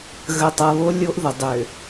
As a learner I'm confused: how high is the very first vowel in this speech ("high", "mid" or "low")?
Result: mid